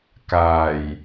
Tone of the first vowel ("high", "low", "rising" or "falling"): low